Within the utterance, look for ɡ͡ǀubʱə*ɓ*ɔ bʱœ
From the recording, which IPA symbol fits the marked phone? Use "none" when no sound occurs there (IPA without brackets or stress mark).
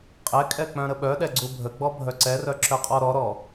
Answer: ɡ͡b